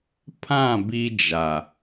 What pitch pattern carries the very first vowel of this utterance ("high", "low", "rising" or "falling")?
falling